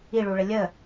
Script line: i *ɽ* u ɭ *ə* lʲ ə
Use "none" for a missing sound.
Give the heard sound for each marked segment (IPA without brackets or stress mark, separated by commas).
ɭ, ə